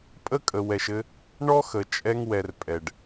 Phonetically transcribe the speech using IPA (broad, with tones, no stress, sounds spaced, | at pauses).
pʼ ə˦ kʼ ə˨ w ɛ˨ ʃ ɘ˧ | ɳ ɔ˦ x ə˨ t͡ʃʼ ɛ˧ ŋ w ɛ˨ r pʼ ɛ˨ ɖ